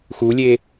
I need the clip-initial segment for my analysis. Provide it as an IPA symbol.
x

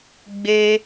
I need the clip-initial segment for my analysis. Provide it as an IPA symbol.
ɡ͡b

